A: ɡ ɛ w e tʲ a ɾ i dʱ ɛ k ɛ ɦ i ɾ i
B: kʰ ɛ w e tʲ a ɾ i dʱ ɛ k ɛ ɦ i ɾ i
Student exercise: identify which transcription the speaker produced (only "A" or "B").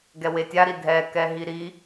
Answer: A